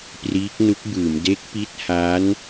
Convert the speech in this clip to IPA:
p r iː˦˥ k̚ n u˦˥ k̚ b ɯː˩˦ m d e˦˥ k̚ p i˦˥ t̚ h a˦˥ n

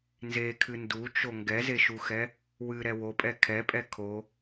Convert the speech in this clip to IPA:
n z e kʰ ɨ n d u t͡ʃ o ŋ ɡ ɛ z e ʃ u x ɛ | w ɨ ɾ ɛ w o pʼ ɛ kʰ ɛ pʼ ɛ kʰ o

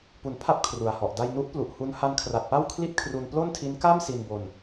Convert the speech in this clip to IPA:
p u˩˦ n pʰ a˦˥ p̚ kʰ r u˨˩ a̯ h ɔ˨˩ ʔ d a˧ j n u˦˥ ʔ p l u˨˩ ʔ h u˦˥ n h a˦˥ n kʰ r a˨˩ t̚ p a˥˩ w kʰ l i˥˩ t̚ kʰ r u˧ n p l o˥˩ n tʰ i˦˥ n k a˥˩ m s i˧ n b o˧ n

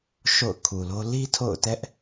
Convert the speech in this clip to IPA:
ʃ o̰˦˨ ʊ̯ kʰ u˨ l o˦ l i˦ tʰ o̰˦˨ ʊ̯ t ɛ˦ ʔ

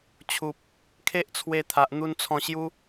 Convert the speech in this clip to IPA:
t͡ɕʰ u˨ p̚ | kʰ e˦ ʔ t͡sʰ w e˧ t̪ʰ a˨ ʔ n̪ u˧ n t͡sʰ ɔ̃˧ ɕ j u˦

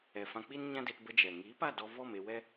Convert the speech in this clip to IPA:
ɛ˨ f ã˧ k͡p i˦ n ɲ ã˦ d e˧ t b ə˦ d͡ʒ ɛ˨ ŋ iː˨˦ p a˦˨ d ɔ˧ v ɔ˦˨ m e˧ w ɛ˦

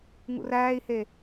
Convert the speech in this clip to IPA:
ŋ ṵ r æː i̯ h e

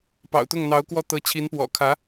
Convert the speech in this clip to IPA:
p ɑ̰˨˩ ʊ̯ t̪ ʊ˥˩ ŋ n̪ ɑ˧˥ ʊ̯ k w ɔ˥˩ t̪ ɤ˧˥ t͡ɕʰ i˧˥ n p w ɔ̰˨˩ kʰ ä˧˥

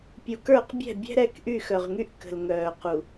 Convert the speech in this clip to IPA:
pʲ u˨ k ə˞˦˨ q bʲ ɛ̤˦˨ bʲ ɛ̤˦ ɾ ɛ˦ k ʔ y˦˨ x œ˨ ʁ ŋ y˦ ʔ k ə̤˨ l ŋ œː˨ q u˨

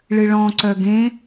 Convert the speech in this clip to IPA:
ɭ ɨ ɭ ɔ̃ ǀ œ ɡ ẽ

